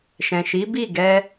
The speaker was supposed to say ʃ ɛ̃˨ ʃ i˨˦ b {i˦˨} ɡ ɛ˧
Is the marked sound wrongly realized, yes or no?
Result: no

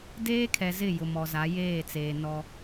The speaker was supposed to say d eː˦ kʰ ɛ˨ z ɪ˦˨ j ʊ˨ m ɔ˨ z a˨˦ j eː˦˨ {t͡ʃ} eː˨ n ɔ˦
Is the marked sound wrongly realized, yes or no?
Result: yes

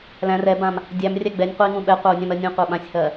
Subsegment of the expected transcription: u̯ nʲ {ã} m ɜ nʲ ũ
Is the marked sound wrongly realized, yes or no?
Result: no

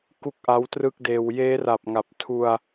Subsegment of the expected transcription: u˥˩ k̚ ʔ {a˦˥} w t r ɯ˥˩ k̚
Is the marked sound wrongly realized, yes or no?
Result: no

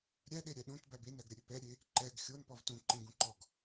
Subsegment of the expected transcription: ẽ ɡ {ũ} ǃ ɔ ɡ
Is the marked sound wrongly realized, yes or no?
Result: no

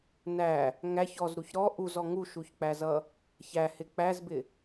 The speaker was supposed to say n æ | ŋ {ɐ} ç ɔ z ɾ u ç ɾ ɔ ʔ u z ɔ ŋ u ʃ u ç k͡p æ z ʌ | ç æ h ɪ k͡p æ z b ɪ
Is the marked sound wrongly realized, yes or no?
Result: yes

